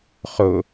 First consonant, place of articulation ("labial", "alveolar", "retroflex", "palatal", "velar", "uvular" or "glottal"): uvular